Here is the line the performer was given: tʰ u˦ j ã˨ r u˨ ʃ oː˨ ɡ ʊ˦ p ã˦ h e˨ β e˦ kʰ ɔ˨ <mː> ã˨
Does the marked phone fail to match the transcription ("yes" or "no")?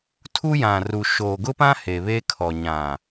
yes